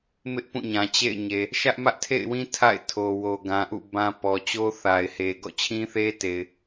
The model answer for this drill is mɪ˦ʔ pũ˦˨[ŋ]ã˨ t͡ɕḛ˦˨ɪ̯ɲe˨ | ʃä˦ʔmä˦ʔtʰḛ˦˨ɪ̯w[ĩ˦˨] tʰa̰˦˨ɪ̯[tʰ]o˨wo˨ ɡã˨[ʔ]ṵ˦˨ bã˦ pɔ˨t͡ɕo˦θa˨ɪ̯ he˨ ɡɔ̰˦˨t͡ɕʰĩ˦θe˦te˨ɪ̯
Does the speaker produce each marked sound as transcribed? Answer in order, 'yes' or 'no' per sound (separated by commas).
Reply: no, no, yes, yes